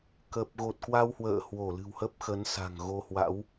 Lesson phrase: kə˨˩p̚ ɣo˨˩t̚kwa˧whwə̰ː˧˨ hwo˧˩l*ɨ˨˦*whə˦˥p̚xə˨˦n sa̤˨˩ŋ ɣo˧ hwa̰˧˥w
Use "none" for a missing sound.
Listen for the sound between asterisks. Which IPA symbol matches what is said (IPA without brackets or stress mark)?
ɨ̤˨˩